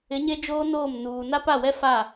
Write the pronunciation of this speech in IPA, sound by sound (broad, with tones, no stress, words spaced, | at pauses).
ɪ˨˦ ɲe˦d͡ʒoː˦noː˦˨m nuː˨na˦ pa˦˨wɛ˦fa˦˨